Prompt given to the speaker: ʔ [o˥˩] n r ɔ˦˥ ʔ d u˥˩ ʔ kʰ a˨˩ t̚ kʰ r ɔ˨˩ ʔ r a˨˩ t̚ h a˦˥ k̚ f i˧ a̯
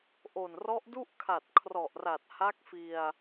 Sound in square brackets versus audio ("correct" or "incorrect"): incorrect